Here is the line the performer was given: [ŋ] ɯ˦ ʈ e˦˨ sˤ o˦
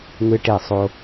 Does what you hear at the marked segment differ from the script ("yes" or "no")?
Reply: no